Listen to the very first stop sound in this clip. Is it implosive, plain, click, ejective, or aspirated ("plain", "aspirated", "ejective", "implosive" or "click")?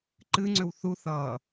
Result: click